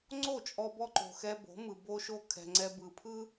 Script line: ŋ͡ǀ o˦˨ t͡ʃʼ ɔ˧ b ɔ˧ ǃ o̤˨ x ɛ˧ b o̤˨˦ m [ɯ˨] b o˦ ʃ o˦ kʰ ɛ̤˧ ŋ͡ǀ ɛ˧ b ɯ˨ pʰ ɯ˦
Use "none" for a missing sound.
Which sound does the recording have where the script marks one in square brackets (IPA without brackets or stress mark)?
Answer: ɯ˨